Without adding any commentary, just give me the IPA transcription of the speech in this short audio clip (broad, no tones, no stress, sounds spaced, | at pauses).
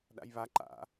ɗ a̰ j β a ǃ a̰